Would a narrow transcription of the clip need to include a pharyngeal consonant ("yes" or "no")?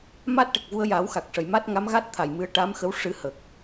no